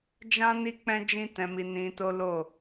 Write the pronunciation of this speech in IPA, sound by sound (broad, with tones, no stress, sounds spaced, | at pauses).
d͡ʒ ã˦ n i˦ k͡p ɛ̃˦ d͡ʒ ĩ˦ t ɛ̃˧ m i˧ n ĩ˧ t o˦ l o˦˨